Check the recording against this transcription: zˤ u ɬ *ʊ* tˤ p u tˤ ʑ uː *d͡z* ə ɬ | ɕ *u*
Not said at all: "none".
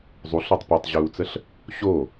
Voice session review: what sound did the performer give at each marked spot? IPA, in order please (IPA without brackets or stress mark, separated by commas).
ɔ, t͡s, o